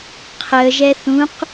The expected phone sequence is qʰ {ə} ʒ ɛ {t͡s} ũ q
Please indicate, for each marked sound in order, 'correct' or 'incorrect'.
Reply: correct, incorrect: θ

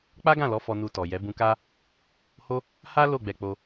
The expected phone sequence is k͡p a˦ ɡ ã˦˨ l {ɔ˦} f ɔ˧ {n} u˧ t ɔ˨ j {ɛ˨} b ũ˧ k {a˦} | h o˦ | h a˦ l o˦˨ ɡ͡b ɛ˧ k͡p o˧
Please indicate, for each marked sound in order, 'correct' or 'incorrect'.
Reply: incorrect: ɔ˨˦, correct, incorrect: ɛ˨˦, correct

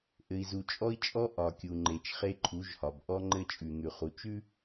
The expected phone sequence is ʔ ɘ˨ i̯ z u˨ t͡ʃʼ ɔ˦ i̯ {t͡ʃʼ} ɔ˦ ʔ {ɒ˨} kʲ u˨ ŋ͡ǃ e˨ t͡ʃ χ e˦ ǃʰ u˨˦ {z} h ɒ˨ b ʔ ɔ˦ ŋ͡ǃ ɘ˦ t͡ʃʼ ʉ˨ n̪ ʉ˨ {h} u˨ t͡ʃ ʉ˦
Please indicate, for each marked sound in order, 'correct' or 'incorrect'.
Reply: correct, correct, incorrect: ʒ, incorrect: χ

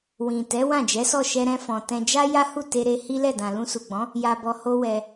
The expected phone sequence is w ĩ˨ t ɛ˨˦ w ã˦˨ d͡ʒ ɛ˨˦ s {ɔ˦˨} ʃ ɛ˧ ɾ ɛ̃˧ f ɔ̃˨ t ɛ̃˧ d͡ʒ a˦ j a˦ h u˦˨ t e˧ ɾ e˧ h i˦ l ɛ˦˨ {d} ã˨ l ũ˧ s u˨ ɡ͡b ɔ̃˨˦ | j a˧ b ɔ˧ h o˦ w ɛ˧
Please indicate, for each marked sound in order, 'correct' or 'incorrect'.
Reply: correct, correct

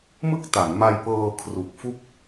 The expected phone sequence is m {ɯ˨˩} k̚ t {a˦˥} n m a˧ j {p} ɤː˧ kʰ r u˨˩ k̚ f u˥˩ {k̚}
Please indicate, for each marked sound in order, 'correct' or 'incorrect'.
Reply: incorrect: ɯ˥˩, incorrect: a˩˦, correct, correct

